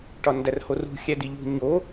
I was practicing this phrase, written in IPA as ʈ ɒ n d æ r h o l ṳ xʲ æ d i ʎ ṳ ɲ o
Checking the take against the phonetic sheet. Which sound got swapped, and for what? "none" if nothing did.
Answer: l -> r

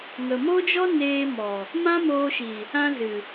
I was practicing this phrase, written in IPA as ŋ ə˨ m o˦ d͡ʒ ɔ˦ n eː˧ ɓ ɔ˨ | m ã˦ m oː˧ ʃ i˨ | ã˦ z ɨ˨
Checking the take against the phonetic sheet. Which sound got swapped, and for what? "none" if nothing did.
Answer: ɓ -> m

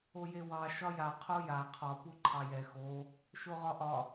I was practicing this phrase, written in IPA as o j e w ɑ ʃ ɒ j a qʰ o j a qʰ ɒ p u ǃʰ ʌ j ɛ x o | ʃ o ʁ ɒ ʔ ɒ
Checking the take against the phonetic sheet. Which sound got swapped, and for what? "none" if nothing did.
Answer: ʌ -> ɑ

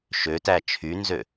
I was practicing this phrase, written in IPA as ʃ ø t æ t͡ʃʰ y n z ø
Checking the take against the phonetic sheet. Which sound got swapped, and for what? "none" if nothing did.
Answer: none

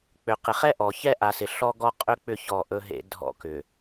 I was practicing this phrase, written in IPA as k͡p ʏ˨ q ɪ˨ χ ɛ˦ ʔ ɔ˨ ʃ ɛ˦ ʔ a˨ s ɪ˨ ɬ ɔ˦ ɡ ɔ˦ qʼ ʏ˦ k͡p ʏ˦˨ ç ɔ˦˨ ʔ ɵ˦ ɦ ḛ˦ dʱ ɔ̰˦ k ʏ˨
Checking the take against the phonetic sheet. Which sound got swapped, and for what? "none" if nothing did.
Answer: ʃ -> ç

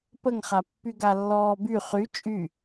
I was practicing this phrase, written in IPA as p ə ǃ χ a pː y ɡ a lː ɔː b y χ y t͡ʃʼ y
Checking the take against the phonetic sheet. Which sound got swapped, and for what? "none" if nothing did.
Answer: ǃ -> ŋ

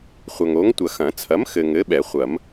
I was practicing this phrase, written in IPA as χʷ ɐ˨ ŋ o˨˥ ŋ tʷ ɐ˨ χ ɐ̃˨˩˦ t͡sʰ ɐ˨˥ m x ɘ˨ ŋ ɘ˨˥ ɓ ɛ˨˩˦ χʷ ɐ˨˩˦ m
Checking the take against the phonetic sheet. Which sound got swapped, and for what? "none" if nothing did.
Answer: χ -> x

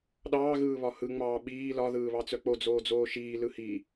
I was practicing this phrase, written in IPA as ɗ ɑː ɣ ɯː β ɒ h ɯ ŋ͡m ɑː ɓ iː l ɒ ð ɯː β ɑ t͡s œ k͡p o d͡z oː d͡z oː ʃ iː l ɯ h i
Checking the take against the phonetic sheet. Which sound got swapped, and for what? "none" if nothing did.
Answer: none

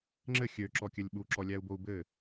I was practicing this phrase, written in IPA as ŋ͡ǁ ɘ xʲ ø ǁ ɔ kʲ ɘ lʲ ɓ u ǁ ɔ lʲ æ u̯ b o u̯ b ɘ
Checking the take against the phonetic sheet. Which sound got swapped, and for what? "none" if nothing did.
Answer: none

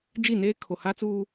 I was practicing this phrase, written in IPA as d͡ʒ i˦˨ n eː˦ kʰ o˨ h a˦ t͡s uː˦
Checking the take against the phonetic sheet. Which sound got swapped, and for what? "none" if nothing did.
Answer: none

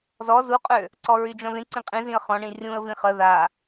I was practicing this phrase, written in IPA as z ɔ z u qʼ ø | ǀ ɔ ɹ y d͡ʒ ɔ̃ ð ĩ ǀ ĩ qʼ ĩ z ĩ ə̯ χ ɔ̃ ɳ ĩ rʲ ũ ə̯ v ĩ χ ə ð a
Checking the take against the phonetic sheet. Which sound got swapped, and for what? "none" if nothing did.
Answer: none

